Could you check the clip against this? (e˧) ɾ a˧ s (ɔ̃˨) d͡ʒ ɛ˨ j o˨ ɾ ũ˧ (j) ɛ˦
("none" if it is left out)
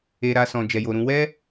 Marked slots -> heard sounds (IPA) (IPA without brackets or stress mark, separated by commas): e˧, ɔ̃˨, w